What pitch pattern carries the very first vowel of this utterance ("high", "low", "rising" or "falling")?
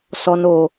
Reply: high